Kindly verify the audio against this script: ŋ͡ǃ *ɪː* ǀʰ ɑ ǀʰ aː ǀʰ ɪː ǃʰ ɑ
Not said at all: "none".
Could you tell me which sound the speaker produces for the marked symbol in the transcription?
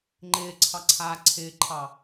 ɪː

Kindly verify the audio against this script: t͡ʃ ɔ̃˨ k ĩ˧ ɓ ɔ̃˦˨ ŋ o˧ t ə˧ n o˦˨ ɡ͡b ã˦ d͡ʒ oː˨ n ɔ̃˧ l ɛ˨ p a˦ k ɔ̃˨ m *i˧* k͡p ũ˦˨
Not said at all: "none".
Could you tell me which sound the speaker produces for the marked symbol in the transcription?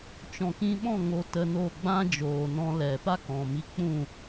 i˧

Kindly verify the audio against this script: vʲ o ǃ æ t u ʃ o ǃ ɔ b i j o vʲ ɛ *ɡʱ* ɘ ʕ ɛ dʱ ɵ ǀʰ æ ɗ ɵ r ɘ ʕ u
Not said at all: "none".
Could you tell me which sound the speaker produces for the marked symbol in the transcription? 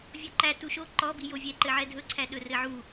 ǃ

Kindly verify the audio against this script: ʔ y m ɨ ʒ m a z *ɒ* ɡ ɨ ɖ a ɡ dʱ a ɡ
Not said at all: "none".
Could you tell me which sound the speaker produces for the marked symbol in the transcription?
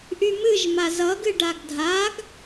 ʌ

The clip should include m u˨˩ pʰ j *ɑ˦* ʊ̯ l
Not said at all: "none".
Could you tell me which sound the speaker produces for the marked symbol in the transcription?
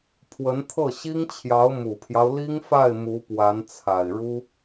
ɑ˦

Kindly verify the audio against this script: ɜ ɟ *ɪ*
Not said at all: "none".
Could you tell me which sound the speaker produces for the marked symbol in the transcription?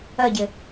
ɪ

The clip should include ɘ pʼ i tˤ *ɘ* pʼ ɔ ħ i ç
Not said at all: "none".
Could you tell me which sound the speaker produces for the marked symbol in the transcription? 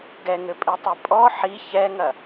ɛ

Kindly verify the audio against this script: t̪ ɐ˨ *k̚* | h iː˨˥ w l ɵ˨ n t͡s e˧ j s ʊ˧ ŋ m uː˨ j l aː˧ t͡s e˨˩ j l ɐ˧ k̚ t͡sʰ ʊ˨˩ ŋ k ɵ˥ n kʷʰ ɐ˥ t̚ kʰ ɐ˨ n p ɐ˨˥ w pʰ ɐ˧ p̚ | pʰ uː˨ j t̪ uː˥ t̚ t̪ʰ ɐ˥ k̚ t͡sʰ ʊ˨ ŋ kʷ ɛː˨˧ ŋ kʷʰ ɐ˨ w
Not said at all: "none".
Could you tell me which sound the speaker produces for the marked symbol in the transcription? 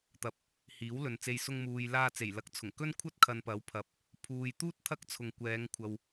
p̚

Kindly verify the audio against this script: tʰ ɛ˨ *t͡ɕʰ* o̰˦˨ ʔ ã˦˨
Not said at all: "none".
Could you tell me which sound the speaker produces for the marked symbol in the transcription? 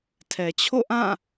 t͡ɕʰ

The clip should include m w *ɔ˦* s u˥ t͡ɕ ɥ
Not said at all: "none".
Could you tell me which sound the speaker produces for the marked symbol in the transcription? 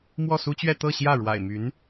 ɔ˥˩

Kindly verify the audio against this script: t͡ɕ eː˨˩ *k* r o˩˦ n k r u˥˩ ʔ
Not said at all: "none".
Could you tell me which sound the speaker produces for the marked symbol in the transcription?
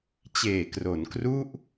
k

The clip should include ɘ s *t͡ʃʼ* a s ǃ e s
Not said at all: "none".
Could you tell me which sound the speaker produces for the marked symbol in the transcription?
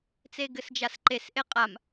d͡ʒ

